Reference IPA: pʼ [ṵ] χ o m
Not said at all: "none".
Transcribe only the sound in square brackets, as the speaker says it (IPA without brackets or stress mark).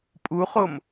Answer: u